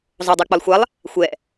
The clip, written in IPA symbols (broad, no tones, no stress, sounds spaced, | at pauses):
zˤ o dˤ ɛ k͡p ɐ lˠ xʷ a lˠ | xʷ ɛ